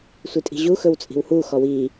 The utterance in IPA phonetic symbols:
sʷitʼi̤ʑuxɵw t͡sʼi̤whuxɔ wi

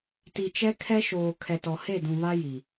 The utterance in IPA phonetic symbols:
ti˨t͡ʃɛ˦ kʰɛ˦ʃoː˨kʰɛ˨tɔ˨ he˦˨dũ˨βa˦ ji˨

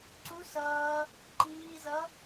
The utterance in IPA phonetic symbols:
ǀu sʌː | ǃiːzʌ

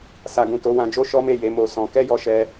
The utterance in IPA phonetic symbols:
sa˨ɡũ˨ to˨˦wã˧d͡ʒo˦ ʃɔ˦me˦˨je˨˦ mo˧sɔ̃˧ kɛ˦jɔ˧ʃɛ˧

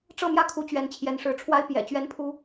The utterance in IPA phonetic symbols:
ʈ͡ʂɤ˥˧mjä˥˩kʰu˧˥ t͡ɕɥɛ˧˥nt͡ɕʰjɛ˧˥nʂɻ̩˧˥ʈ͡ʂʰwa˥ɪ̯ pjɛ̰˨˩ t͡ɕɥɛ˥npʰu˥

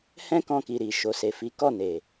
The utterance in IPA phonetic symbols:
hɛ̃˦kɔ̃˧ki˨ ɾi˨ ʃo˨se˨fi˨˦ kɔ˦˨ne˨

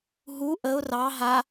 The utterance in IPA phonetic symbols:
ɦu ʔəʊ̯ rɑ ɦa

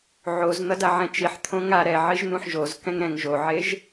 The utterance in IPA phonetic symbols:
ʕozn̪ʌda ʕɛ̃t͡ʃiħ t̪ʰõŋa ɾɛʕiʒ n̪ũħʒozkɛ̃ŋ ɾɛ̃ŋ ʒoʕeʒ

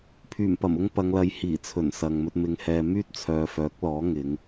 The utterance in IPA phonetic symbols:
pʰyː˨˩mpɐ˨˩mʊ˧ŋ pɐ˨˧ŋlɐ˨˧jhiː˨˩t͡sʰɵ˨˩n sɐ˨ŋmɵ˧t̚ mɪ˨˧ŋhɛː˨ myː˥t̚t͡sʰœː˨fœː˨˥k̚lɔː˨˥ ŋɪ˨˧ŋ

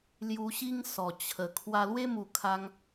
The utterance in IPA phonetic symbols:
lju˧ɕi˦ŋ sɔ˨˩ t͡ɕʰə˨˩ kʰwa˧lwe˦mu˨˩kʰa˧ŋ

